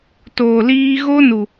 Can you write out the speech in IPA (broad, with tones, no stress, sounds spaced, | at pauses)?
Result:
t oː˨ l iː˧ ɣ o˦ n u˨